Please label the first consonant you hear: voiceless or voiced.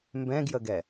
voiced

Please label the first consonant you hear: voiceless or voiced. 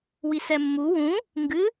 voiced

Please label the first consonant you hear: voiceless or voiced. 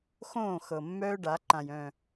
voiceless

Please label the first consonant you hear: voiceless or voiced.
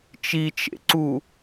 voiceless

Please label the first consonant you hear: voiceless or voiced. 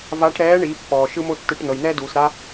voiced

